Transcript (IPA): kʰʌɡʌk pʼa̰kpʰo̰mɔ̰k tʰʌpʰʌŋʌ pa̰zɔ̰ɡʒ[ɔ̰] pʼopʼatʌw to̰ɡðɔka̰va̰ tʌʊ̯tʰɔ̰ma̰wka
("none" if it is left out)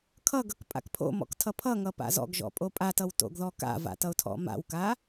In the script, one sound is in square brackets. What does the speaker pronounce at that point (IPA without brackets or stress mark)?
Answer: ɔ̰